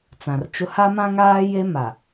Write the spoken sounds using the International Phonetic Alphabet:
t͡s ã˨ r t͡ʃ ʊ˦ h a˦ m ã˦ ŋ aː˦ j e˦ m a˨

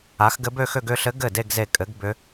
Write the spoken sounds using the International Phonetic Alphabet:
a˩˥ x ɡ ɘ˧˥ b ø˥˧ x ø˥˧ ɡ ʏ˥˧ ɬ ɘ˧˥ ɡ ɘ˥˩ d e˥˧ ɡ z e˧˩ kʼ ɘ˩˥ ɡ b ʏ˧˥

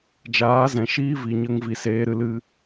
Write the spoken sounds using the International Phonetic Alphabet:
d͡ʒ aː˨˦ z ɛ̃˨ ʃ iː˦ v i˨ ɲ ə˧ ŋ v i˨ s eː˧ ɾ ɨ˧ l ɨ˧

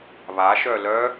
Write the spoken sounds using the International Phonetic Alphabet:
β a ʃ œ l œ

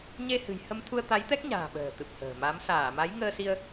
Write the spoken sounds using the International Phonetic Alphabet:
ɲ e˧ h ɨ̤˨˩ j h ə˧ m t̪ʰ u˧ ə̯ t̪ a˨˦ j t̪ ɛ˦˥ k̚ ɲ a̤ː˨˩ ɓ ə̤ː˨˩ t̪ ɨ˨˩ p̚ h ə̤ː˨˩ m a˨˦ m s aː˧˩ m a˨˦ j ŋ əː˧ s i˧ ə̯

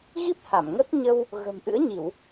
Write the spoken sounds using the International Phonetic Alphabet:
ɣ i˦˥ p̚ h a˧˩ m ŋ ə˦˥ t̚ ɲ ə˧ w | ɣ ə̤˨˩ m ʔ ɨ̰˧˥ ə̯ ɲ i˧˩˨ w

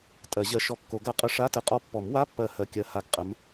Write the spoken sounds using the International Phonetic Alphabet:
tʼ ɜ˨˩˦ ʑ ɜ˨˥ ʃ ɔ˧˩ kː o˨˩˦ ɡ a˧ qʼ ə˧˥˧ ʂ a˧˥˧ t ə˧˩ qʼ ɔ˧ pː ɔ˨˩˦ m w a˧˥˧ pː ɜ˥˩ h ɜ˧˥˧ kʲ ɜ˧˥˧ h a˧ ɡ qʼ ə˨˥ m

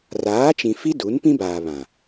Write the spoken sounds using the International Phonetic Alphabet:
r aː˨˦ t͡ʃ ĩ˨ f i˦ d u˨˦ n p ĩ˦ b aː˨ β ã˨

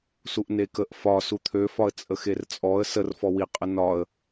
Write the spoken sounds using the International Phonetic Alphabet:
s u ʔ n e k ə ʔ f ɒ s u t̪ʰ ø f ɒ ə̯ t͡sʼ ə x e r t͡sʼ ɔ ə̯ s ə r f ɔ w i qʼ ə n ɒ ə̯

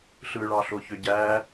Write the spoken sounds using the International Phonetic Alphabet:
ɬ ɯ ɭ ɑ ɬ o ç ø ɟ æ

